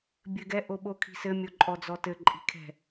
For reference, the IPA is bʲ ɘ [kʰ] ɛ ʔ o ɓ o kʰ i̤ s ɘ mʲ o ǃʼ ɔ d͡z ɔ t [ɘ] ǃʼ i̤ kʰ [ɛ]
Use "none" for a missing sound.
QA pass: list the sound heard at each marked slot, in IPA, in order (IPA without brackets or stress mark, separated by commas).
ɡ, ɘ, ɛ̤